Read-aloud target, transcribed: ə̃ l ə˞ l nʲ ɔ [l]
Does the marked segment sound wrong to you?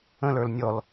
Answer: no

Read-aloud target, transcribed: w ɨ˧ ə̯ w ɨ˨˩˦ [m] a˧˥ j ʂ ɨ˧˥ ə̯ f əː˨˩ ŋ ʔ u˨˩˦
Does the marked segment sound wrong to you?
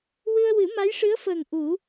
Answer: no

